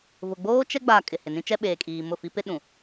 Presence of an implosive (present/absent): present